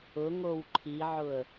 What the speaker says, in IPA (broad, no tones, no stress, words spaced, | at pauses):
ʊŋow ǃʰiʕʊə̯